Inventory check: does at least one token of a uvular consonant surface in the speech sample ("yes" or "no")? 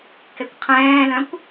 yes